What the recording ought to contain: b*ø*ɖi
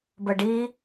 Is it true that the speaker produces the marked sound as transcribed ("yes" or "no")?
no